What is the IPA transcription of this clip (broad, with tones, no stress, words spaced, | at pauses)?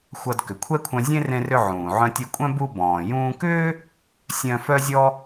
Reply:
xʷʌ˧d kʏ˩kʷʰɛ˥kʷʰœ̃˧ zʲẽ˥ rẽ˧rʏ˧ ʕũː˩ʕœ̃˧tʲu˧kʷʼœ̃˥ bu˧bɔ̃ː˩jũː˧kʏː˥ | sʲœ̃˧ fœ˥zʲɔ˥